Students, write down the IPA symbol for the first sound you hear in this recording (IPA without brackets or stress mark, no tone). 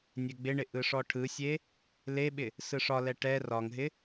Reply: nʲ